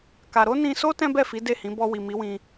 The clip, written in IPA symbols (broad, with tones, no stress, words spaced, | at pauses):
ka˧ ɾo˦nĩ˧so˦ tɛ̃˦bɛ˦˨fi˨˦ de˦˨hĩ˨˦ bɔ˧wi˨ mi˨˦wĩ˧